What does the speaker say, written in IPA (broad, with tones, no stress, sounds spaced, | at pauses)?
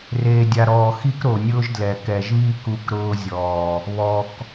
r eː˨ dʲ a˨ ɾ ɔː˨ x i˦ k ɾ o˨ nʲ ʊː˦ ʒ d l ɛ˨ k ɛ˨ ʒ β i˦ k u˦˨ k ɾ ʊː˦ zʲ ɔː˨ | β ɔ˨ k